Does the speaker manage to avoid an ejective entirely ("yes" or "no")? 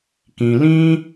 yes